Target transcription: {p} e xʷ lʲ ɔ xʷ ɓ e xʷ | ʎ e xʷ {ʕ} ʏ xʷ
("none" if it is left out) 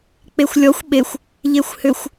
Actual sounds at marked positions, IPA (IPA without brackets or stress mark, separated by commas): k͡p, h